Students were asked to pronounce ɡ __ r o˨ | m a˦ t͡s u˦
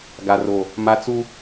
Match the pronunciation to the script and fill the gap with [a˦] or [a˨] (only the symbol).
a˨